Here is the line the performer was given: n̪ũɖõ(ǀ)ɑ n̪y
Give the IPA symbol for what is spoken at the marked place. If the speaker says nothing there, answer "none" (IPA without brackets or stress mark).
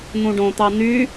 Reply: t̪